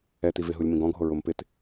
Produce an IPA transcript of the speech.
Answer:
ɛt ivɪɦulʲ mĩɡɔ̃ɡʱo ɹʊm pɪt

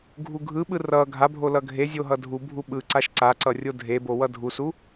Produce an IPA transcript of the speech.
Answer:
ɡʱuɡʱɯɓɯ rʌ ɡʱabʱo lʌɡʱezʲo ɦʌdʱubʱu ɓɯǀaʃ ǀaǀʌ rʲodʱebo wʌdʱusu

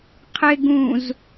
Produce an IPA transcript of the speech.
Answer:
qʰɪ ɡũz

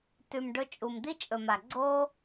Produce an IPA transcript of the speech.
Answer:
tʉ˨mɖɵ˧t͡ʃʼu˨m d̪i˦t͡ʃʼɵ˨ma˨ ɡ͡ǀo˦

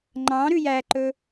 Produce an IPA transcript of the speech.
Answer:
ŋ͡ǃɑ̃ ɾʉjæǃɵ

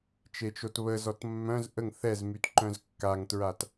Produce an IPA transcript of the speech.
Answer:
t͡ʃet͡ʃotβəzɔt mːœ̃z ʔəŋ θɛzmyt ǃœ̃zkːaŋtɹat

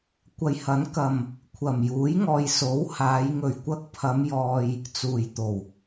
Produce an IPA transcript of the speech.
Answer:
kʷɐ˨˧jhɐ˨˥n kɐ˨m | kʷʰɐ˨˩mjuː˨˥jŋɔː˨j so˨˥whaː˨˧j ŋɵ˨˩ɥkʷɐ˧k̚pʰɐ˨˧m jɔː˧j | t͡suː˨˩jt̪o˨˩w

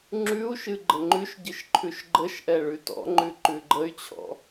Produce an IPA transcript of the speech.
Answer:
ŋ͡ǁʉu̯ʃɨ ɡ͡ǃəŋ͡ǃʉʃɟɨʃ ǃʰʉʃɡ͡ǃəʃʔɛ ɭʉtɔ̰ŋ͡ǃʉ ǃʉɡ͡ǃəy̯t͡ɕʰɔ̰

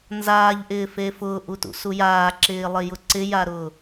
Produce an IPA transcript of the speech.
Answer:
nzaːʎʔɪːfe fʊːʔutṵsu jaːǁɪːlˠɪjʊ ǀɪjaɾʊː

